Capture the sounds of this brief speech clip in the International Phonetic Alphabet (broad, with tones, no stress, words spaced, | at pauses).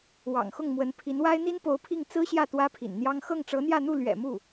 wɑ̰˨˩ŋxʊ˥˩ŋmwə˧˥n pʰi˧˥nwa˥ɪ̯ n̪i˥npo˧˥ʊ̯pʰi˥˩ŋ t͡sɹ̩˥ɕjä˥˩ t̪wä˥pʰḭ˨˩nn̪jɑ˥ŋ xɤ˥˩ŋʈ͡ʂɤ˧˥n̪jä˥˧n̪u˥˩ lɥɛ̰˨˩mu˥˩